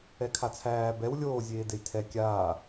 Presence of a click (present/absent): absent